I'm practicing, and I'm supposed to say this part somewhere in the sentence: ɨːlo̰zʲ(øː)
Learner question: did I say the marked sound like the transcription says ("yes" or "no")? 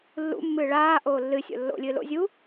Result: no